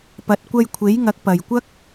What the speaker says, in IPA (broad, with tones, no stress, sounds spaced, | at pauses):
p ɐ˨˥ t̚ kʷ ɐ˧ j kʷʰ e˨˥ j ŋ ɐ˨˥ k̚ p ɐ˨ j kʷ ɐ˥ k̚